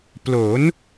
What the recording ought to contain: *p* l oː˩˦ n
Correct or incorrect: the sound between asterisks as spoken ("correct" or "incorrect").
correct